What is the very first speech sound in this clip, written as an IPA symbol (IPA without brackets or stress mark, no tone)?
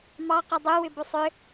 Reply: m